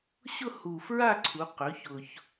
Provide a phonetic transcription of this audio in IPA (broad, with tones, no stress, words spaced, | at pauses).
ɕʊ˥˧hu˨˩fɹa˥˧ǀʰu˩˧ qɵ˩˥çʊ˨˩ç